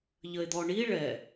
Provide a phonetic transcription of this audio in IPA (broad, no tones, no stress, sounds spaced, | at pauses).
ʎ ə e̯ d̪ ɔ ɳ i ɭ ɛ